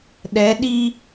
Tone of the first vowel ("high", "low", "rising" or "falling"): rising